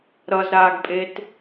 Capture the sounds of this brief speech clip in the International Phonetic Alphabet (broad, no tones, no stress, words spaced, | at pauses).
ɾʌzɾaːɡpʼet